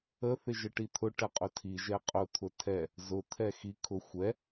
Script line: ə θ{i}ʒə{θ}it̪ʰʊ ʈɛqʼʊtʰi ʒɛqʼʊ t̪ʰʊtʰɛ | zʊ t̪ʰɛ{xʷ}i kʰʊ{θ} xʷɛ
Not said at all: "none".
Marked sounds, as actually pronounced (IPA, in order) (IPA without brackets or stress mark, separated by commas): ɪ, ʈ, x, none